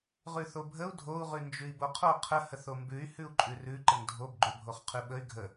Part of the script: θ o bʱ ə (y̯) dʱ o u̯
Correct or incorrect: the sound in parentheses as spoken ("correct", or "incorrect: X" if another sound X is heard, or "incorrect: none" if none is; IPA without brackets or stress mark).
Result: incorrect: u̯